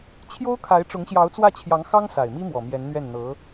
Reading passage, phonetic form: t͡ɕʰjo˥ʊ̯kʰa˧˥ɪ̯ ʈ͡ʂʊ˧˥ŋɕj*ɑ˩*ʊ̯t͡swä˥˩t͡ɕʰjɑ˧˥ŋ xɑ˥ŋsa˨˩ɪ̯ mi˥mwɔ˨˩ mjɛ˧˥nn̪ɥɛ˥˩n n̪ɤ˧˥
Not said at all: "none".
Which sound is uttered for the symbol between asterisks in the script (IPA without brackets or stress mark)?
ɑ˧˥